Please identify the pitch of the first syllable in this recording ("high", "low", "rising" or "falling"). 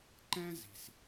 high